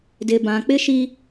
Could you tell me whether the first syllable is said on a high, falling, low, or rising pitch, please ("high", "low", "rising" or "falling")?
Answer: low